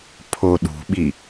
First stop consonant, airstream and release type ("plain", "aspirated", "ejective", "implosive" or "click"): aspirated